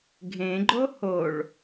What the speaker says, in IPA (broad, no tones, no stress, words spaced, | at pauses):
ɡʱẽɡ͡ǃo hoɭ